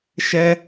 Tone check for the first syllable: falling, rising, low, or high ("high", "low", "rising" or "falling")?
high